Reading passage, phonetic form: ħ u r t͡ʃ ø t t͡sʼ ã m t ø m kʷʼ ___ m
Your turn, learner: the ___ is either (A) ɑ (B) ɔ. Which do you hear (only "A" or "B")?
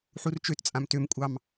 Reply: A